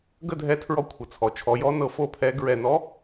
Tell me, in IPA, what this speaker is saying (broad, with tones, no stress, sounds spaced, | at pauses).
ɡ ə˥˧ dʱ ɛ˧˥ tʰ ɹ ɔ˧˥ kʷʰ ə˩˧ t͡sʰ ɔ˩˧ t͡ʃʰ ɔ˩˧ j ɔ˧˥ n ɤ˧˥ f o˥˧ pʰ ɛ˧˥ ɡ ɹ ɛ˧˩ n ɔ˧˥